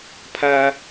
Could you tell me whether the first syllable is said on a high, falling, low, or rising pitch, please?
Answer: high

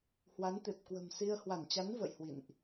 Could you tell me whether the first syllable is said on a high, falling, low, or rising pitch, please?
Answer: rising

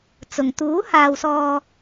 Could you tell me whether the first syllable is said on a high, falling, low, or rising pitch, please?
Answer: low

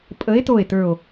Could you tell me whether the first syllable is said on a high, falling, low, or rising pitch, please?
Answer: rising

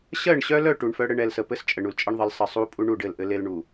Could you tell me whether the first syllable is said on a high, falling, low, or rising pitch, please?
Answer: falling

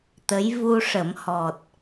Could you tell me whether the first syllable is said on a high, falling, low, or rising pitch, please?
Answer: rising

